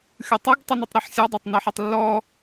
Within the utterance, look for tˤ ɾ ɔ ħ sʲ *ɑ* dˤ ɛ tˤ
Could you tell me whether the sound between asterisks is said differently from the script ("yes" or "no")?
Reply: no